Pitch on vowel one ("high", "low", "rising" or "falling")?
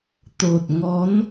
low